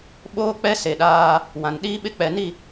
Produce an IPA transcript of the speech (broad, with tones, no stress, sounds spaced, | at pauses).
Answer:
ɓ oː˦ k͡p ɛ˦ s e˨ ɗ aː˦ | w ã˨ n ɗ iː˦ ɓ ɪ˦ k͡p ɛ˨ n i˦˨